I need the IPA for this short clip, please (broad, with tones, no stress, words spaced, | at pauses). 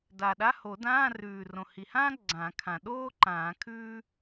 da˨˩ɗa˧˥˧ho˨˩˦ dãː˧˥˧rʉː˨˩ rõ˨˩hi˨˩hãː˥ ɡ͡ǀã˨˩˦kʰã˨˩ ɗoː˥ ǃãː˨˩˦kʰʉː˥